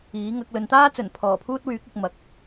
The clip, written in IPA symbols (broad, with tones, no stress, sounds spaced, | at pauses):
iː˨˥ ŋ ɐ˨˥ k̚ l ɵ˨ n t̪ aː˥ t͡s ɵ˨˩ n pʰ ɔː˨˩ pʰ uː˥ t̚ w yː˨˥ k̚ ʊ˨ k̚ m ɐ˨ k̚